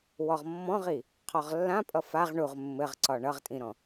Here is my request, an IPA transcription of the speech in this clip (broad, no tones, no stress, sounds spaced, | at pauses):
w ɔ ʁ mː ɔ̃ ʁ i | qʰ ɔ ʁ lː ã pʼ ʌ f a ʁ ɳ u ʁ mː ɘ ʁ ǀ ɒ ɳ ʌ ʁ tʼ ĩ ɾ ɔ̃